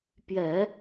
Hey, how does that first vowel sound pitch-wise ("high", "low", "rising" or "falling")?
low